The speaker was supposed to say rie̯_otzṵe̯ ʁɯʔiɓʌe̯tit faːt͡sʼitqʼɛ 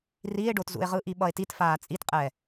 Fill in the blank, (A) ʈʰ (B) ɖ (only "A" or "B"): B